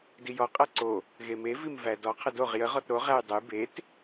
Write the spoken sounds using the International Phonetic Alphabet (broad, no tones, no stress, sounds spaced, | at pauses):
d i j ɔ qʼ æ ǀ o | ɣ e m e v i m v æ d ɔ qʰ ə d o ʁ j ə ʁ ɔ t ɾ o ʁ æ j dˤ ə j b e t